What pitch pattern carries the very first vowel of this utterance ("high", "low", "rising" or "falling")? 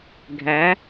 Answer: rising